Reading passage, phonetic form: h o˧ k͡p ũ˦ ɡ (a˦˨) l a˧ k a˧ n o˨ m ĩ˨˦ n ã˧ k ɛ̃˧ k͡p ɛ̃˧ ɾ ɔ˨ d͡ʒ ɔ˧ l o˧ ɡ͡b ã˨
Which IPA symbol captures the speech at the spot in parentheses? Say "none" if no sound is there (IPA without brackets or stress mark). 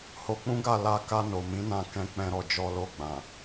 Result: a˦˨